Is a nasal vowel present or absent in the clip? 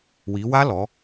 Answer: absent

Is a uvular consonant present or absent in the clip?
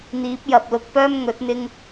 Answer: absent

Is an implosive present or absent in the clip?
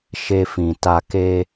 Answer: absent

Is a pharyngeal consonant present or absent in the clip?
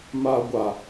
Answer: absent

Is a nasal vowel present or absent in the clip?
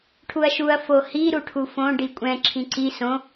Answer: present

